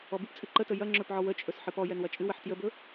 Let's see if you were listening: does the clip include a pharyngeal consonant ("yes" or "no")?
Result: yes